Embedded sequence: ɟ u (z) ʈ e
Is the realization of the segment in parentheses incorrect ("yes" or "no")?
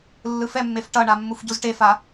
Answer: no